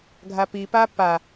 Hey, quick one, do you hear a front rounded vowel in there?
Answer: no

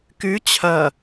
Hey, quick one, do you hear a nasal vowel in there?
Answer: no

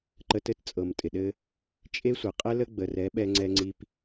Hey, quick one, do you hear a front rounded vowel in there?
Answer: no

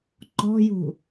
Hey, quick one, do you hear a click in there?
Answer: yes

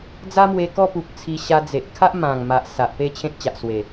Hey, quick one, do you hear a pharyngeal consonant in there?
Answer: no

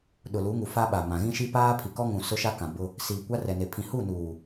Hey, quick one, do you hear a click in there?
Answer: no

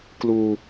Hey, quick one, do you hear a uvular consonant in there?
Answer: no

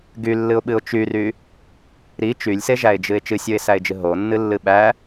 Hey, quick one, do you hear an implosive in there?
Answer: yes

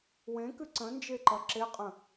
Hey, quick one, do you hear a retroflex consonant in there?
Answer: no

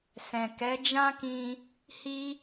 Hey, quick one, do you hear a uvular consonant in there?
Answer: no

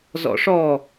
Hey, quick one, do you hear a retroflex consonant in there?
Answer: yes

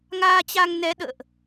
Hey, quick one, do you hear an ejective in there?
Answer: no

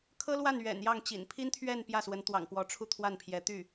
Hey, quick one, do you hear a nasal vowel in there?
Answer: no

